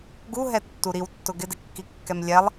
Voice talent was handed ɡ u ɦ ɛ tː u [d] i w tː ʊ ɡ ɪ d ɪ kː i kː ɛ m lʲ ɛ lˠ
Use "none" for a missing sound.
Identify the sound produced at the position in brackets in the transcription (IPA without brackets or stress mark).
ɾ